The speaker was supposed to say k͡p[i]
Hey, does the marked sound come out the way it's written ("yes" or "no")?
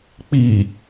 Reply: yes